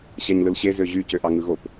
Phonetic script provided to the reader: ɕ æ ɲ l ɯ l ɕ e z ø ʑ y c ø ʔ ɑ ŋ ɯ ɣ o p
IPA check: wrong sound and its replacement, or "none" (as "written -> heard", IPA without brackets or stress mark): none